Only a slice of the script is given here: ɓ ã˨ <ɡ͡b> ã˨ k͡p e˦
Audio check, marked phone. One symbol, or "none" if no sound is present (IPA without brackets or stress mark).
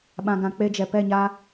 ɡ